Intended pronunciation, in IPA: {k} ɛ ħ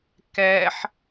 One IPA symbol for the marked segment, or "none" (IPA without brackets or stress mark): k